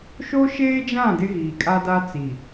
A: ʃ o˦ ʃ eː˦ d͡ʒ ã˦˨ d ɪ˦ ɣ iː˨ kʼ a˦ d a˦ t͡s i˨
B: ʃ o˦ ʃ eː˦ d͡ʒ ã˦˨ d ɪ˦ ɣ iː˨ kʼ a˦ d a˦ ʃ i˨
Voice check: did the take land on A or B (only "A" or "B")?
A